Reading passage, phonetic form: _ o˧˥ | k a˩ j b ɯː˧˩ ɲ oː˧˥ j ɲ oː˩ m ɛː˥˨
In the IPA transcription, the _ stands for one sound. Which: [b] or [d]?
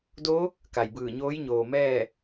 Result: d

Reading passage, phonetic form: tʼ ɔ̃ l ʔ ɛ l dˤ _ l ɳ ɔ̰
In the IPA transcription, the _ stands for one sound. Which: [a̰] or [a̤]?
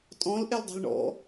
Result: a̤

